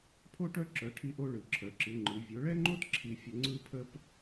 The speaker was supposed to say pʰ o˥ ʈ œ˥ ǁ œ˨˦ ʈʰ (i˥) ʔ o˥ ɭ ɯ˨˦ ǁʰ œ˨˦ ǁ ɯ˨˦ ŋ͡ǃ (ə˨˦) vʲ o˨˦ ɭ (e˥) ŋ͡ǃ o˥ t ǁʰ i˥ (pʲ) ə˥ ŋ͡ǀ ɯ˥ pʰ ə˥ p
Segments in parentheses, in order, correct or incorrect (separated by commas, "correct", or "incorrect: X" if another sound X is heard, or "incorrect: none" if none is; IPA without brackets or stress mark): correct, incorrect: ɯ˨˦, incorrect: ɛ˥, incorrect: fʲ